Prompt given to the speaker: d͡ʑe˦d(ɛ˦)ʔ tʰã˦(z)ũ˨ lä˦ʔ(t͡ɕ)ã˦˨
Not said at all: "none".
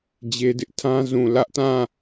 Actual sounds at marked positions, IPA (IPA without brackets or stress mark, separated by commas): ɪ˦, z, t